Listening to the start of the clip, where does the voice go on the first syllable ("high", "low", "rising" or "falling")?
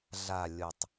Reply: low